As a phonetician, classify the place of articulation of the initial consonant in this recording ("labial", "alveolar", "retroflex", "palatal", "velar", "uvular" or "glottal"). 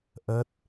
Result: glottal